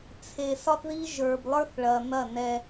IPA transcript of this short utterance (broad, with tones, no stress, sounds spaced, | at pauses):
t͡sʰ e˨ s ɒ˦ θ ð i˦ ʒ ə˞˨ b lˠ ə˞˦ θ ɭ ɐ˨ n̪ ɐ˦˨ n ɛ˦